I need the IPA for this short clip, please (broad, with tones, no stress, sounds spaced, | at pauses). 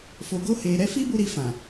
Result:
f o˨ ɡ o˧ h e˨ ɾ ɛ˧ f i˦ b u˧ ɾ i˧ f ã˨